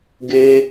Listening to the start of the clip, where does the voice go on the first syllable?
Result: high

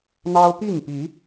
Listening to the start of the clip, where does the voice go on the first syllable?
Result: high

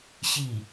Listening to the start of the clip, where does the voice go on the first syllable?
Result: falling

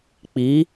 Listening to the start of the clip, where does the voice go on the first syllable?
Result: rising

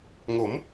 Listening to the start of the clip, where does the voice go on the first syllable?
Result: rising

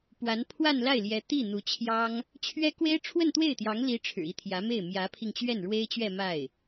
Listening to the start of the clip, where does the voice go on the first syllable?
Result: rising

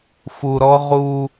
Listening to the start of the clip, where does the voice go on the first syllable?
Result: low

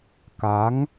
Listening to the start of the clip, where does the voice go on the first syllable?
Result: rising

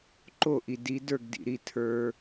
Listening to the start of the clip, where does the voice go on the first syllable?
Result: falling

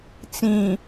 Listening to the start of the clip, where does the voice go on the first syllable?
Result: low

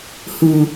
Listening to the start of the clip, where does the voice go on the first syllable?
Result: low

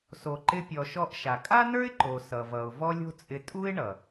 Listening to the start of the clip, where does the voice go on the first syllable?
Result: low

